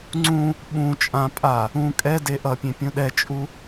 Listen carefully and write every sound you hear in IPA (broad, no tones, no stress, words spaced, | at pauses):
ŋ͡ǀũ | ɓũ t͡ʃʼã pʼa | ũ kʼɛde ʔʌpʲẽ pʲũɗɛt͡ʃʼu